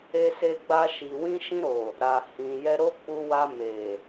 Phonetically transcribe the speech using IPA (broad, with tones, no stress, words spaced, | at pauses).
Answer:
e˧se˧ɡ͡ba˧ ʃi˨wĩ˧ʃĩ˧ɾo˨ | ɾa˨hĩ˨ jɛ˧ɾo˦k͡pu˧wa˧ me˨